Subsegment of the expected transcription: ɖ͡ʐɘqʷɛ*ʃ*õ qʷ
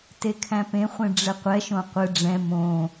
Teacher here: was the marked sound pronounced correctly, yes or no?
yes